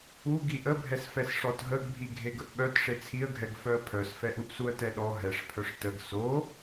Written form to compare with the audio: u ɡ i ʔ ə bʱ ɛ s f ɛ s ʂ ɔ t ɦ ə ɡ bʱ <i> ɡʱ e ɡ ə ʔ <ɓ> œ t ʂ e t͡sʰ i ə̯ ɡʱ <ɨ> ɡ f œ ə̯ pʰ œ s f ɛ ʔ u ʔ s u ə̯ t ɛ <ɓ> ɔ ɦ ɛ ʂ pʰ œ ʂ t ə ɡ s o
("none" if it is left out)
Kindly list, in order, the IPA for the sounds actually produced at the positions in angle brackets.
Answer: i, ɓ, ɛ, ɗ

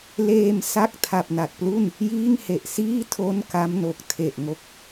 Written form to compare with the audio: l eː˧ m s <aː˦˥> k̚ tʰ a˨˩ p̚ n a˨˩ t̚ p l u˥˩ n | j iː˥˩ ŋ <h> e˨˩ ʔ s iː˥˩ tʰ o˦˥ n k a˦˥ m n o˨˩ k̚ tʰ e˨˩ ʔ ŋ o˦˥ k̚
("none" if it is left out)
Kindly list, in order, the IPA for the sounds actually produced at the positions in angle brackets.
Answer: a˦˥, h

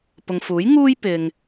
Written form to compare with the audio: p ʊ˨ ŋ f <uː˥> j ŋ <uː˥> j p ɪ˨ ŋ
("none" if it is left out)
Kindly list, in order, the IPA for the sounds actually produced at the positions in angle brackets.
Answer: uː˨˥, uː˥

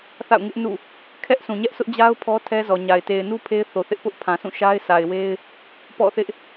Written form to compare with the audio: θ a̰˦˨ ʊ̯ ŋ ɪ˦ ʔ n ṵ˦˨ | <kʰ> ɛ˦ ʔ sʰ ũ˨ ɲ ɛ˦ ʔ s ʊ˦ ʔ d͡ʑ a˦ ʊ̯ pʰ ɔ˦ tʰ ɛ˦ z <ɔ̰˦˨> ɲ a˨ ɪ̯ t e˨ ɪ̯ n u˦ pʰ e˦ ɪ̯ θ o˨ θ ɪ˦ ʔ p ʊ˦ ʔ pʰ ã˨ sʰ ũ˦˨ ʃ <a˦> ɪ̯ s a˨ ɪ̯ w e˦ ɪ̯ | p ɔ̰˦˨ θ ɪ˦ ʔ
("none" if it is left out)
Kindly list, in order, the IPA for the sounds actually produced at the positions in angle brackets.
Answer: kʰ, ɔ˨, a˦

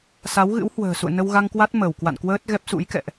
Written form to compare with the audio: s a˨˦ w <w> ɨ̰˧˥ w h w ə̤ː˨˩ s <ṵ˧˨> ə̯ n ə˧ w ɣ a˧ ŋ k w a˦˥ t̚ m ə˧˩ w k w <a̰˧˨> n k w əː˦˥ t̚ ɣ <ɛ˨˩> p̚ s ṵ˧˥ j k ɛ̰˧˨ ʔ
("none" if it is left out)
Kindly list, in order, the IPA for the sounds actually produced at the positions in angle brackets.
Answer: ɣ, ṵ˧˨, a̰˧˨, ɛ˦˥

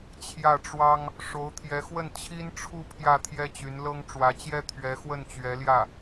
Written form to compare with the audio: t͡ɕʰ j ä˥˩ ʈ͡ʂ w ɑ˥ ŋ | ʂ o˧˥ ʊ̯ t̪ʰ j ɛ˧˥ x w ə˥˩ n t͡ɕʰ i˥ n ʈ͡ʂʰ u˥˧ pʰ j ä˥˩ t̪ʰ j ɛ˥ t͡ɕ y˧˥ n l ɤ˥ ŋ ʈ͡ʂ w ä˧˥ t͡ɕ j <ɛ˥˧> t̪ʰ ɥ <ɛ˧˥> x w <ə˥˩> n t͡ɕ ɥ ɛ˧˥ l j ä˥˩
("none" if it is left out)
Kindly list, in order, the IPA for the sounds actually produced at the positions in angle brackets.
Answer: ɛ˥, ɛ˧˥, ə˥˩

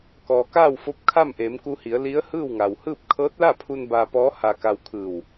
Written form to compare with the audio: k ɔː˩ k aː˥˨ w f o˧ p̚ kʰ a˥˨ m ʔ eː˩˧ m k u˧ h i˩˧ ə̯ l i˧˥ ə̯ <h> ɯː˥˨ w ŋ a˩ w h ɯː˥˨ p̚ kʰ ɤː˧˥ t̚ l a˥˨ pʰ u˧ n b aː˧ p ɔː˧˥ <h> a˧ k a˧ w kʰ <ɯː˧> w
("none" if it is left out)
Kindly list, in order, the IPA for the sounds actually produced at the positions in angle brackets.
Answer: h, h, ɯː˧˩

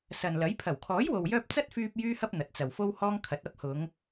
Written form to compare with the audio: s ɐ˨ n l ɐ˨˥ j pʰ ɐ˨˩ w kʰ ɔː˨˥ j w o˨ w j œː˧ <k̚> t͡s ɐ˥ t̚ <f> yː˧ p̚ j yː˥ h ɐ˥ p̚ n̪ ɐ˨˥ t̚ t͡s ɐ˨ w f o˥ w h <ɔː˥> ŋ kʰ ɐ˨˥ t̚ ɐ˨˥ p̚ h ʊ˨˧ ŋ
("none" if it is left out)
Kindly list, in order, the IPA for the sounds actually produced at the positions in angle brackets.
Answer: p̚, f, ɔː˥

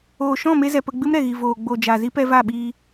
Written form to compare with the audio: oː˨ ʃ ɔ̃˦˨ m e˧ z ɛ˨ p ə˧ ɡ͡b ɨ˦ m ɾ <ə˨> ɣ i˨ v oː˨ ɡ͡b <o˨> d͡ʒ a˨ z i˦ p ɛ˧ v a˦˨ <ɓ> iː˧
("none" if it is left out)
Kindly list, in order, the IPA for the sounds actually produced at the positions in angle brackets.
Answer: ɛ˨, o˨, ɓ

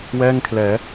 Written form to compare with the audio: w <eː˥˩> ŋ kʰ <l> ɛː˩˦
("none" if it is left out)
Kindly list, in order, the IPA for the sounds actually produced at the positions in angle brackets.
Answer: ɛː˥˩, l

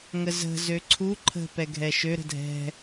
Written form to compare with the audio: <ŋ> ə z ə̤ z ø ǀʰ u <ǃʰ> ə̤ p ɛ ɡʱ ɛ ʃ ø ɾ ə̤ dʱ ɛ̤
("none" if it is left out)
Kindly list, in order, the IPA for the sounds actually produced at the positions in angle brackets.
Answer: ŋ, ǃʰ

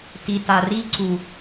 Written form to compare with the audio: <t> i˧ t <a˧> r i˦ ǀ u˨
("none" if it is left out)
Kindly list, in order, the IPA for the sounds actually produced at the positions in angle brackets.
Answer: t, a˧

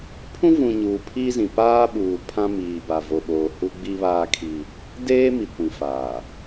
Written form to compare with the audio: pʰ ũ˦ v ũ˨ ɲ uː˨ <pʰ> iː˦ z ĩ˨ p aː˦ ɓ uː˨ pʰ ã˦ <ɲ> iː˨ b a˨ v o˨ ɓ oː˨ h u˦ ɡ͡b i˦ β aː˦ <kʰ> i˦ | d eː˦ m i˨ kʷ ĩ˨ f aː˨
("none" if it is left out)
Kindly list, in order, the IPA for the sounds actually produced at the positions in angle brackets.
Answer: pʰ, m, kʰ

